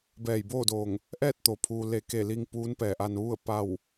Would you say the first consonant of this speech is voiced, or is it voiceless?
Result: voiced